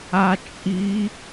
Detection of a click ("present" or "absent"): absent